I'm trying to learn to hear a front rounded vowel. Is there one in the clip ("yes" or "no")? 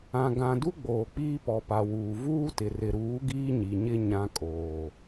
no